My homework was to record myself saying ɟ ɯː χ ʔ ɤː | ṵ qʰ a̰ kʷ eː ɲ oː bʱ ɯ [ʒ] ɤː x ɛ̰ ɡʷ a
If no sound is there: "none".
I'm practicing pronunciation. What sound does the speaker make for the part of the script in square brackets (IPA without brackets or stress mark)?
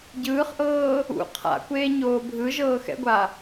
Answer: ʒ